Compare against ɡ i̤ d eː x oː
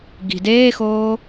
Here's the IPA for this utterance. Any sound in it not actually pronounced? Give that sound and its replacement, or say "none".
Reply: none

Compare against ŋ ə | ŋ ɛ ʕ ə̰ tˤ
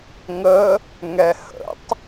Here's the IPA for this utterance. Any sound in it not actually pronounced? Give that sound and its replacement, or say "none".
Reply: ʕ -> h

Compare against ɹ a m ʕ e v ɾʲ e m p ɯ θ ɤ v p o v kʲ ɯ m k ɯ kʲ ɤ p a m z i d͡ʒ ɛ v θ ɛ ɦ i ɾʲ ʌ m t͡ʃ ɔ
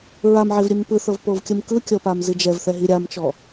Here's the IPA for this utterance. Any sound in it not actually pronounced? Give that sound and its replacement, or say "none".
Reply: ʌ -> a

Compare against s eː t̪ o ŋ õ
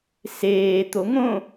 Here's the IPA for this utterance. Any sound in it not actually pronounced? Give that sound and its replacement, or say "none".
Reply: none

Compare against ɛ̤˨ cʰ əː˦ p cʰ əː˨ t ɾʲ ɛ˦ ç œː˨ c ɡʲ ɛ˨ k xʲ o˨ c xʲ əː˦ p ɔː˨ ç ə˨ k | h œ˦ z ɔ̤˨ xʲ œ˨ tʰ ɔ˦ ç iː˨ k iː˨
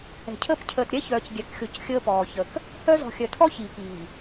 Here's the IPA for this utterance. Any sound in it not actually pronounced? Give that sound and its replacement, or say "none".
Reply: none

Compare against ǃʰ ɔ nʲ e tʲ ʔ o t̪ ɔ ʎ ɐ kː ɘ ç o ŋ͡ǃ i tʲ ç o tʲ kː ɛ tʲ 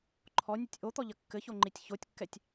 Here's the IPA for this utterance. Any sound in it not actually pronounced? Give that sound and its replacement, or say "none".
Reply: e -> ɨ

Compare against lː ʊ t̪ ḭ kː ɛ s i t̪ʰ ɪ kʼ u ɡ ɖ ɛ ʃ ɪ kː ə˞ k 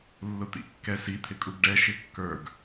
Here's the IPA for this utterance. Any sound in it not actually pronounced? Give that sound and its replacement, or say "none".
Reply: k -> ɡ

